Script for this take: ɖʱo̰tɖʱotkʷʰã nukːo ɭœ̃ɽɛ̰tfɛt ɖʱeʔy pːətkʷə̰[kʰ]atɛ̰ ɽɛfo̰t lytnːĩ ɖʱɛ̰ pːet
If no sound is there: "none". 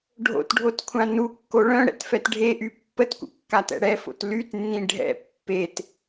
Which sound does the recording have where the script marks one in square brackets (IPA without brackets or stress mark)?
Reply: kː